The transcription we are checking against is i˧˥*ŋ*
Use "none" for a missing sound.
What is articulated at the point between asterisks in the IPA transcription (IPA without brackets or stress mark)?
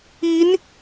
n